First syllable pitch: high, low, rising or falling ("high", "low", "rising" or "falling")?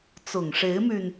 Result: low